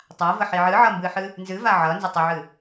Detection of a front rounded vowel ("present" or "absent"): absent